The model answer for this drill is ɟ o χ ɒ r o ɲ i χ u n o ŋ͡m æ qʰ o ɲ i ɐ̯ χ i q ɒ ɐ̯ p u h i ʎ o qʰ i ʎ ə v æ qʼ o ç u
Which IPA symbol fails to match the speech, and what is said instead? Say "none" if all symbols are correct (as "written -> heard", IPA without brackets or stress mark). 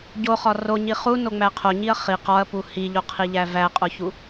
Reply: ə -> æ